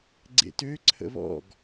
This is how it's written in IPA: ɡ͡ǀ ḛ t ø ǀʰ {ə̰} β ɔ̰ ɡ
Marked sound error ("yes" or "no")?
no